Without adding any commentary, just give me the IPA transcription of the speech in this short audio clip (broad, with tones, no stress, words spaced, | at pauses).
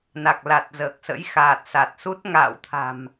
na˨˩k̚la˨˩t̚zəː˨˩k̚sə̰˧˥j xaː˨˩t̚sa˨˩t̚su˦˥t̚ ŋa̰ː˧˨wt̪ʰa̤˨˩m